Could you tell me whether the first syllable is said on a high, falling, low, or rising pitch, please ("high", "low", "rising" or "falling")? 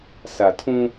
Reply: low